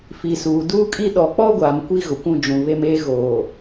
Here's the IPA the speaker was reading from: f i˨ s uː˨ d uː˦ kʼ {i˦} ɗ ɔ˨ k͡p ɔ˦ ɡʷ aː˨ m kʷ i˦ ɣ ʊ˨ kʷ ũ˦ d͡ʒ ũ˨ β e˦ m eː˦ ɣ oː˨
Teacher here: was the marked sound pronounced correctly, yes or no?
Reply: yes